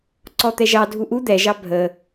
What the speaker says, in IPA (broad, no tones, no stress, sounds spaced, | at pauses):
ǀ ɔ t̪ ɛ ʒ ɑ dʱ u ʔ u d̪ ɛ ʒ ɑ bʱ ə